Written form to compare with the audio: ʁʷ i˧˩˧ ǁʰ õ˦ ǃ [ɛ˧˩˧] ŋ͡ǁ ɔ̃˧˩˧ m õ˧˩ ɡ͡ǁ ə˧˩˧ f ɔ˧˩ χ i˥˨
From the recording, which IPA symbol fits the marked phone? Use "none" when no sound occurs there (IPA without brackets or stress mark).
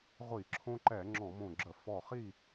ɛ˧˩˧